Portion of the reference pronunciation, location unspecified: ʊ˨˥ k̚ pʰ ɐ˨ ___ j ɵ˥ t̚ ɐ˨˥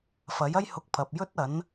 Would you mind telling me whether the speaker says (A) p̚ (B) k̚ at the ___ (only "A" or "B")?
A